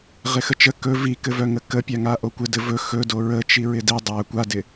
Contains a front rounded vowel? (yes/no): yes